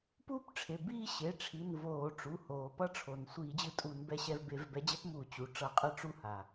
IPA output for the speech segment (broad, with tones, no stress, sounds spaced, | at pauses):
p uː˦ p ʈ͡ʂʰ e˩˧˩ b iː˦˨ ɕ e˩˧˩ ʈ͡ʂʰ i˩˧˩ n v oː˧˩˧ ʈ͡ʂ u˩˧˩ h oː˩ p ʌ˦ ʈ͡ʂʰ o˩ n sʷ iː˧˩˧ d͡ʑ ɯ˦˨ tʼ uː˧˩˧ n b ɛ˦˨ ɕ ɛ˦˨ v b e˧˩˧ v b ɛ˨˦ d͡ʑ ɛ˦ p m uː˧˩˧ t͡ɕ u˩˧˩ ʈ͡ʂ ʌ˧˩˧ qʼ ɯ˦˨ ʈ͡ʂ u˦˨ h a˩